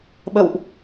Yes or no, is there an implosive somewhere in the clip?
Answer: yes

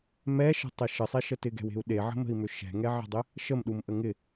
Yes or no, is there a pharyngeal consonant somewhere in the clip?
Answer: yes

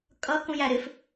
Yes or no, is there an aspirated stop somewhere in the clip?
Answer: no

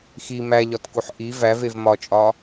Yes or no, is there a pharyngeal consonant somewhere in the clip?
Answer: yes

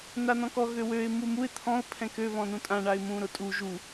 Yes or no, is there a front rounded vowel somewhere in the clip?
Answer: yes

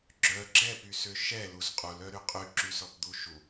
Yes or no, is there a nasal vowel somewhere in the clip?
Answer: no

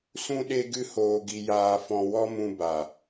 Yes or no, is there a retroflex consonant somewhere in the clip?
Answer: no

